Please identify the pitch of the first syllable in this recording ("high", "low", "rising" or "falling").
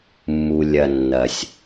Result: low